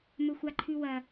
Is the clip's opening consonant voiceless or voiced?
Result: voiced